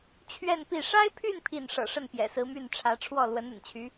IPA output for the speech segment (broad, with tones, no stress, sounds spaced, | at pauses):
t͡ɕʰ ɥ ɛ˥˧ n p i˥˩ ʂ a˥ ɪ̯ pʰ y˥˧ n pʰ i˥˩ n ʂ ɤ̰˨˩ ʂ ə˥˩ n p j ɛ̰˨˩ s ɹ̩˧˥ m y˥˩ n ʈ͡ʂʰ ä˧˥ ʈ͡ʂʰ w ɔ˥˩ l w ə˧˥ n ə̰˨˩ n t͡ɕʰ y˧˥